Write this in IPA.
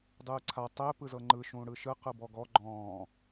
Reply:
dˤɯːǀʰa tˤɛ pɯzɤŋ͡ǃɯ ʃũːɽɯʃɯ qɯbɔɡɔ ɡ͡ǃɔ̃ː

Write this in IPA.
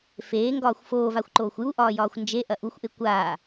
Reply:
feːŋɡɒːxʷ foːvaxʷǃoːxʷ juʔɒːjɒːxʷ nd͡ʒeʔɐ ʔuxʷʔe kʷaː

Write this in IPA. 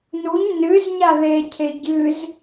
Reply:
nuɲ nɨz ɲaðecʰe ɟɨz

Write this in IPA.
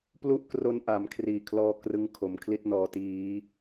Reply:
plu˦˥ʔkro˧nʔa˩˦m kʰriː˨˩kʰlɔː˦˥krɯ˧ŋ kʰo˩˦mkʰli˥˩t̚ nɔː˨˩tiː˩˦

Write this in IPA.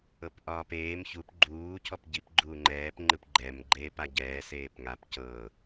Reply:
ɤpʔɒːpeːm çup ɡ͡ǃuː cʰɔpɟip ɡ͡ǃuːŋ͡ǃɛːp ŋ͡ǃɯpɡ͡ǃɛm ɡ͡ǃeːpaɟɛː seːpŋap cɤ

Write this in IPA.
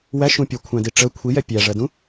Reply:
wæ ʃũpʲʌkʷʰæ̃di ʈ͡ʂə kʷʰijɛ pʲæʐɜdũ

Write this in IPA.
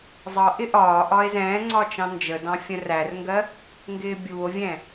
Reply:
zˤʌ ʔɪʔɒːʔɒe̯ zɛ̃ːŋ͡ǀɒ t͡ʃɑ̃nd͡ʒədɑ̃ fʲə̃rærŋɡɜ | ŋɡɪːbʲuːo̯vʲɛ̃

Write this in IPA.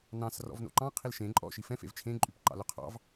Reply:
nɑ̃s rɔ̰vno̰ǃɑ̃ qʰilʃẽ ǃʼɔ̰ ʃifɛ̃fḛv t͡ʃʰẽǃʼypǃɑ̰ lɵqʰɑ̰v

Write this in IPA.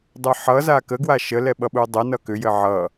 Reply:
dˤɐħʌ zakəɡwa ʃəlɛɓʌɓuə̯ dˤɐnʌ kʏjɘ ʕʌ

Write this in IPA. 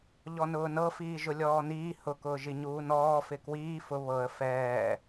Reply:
ʎɔnʊːnɤfiː ʒʊlʲɔːniː hʊkʊːʒiɲuː nɔːfɪ kwiː fʊ βɤə̯ fɛː

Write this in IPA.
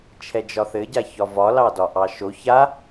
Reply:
t͡ʃʰɛd͡ʒɒθɘ ɟaçɒvɒ lɑdɒʔɑʃo ça

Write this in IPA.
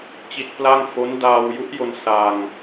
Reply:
t͡ɕi˦˥t̚pla˥˩ŋ fo˦˥n daː˧wju˦˥ʔjo˧n sa˧ŋ

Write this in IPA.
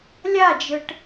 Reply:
lʲad͡ʒɯʈ

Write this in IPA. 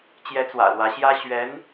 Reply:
t͡ɕjɛ˧˥t͡swä̰˨˩ lwä˧˥ɕjä˥ɕɥɛ˧˥n

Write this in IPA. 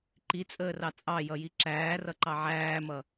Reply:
ǃit͡sʼəːrɑ t͡sʼɑjʌji ǁæːrʌǃɑ ʕæːmʌ

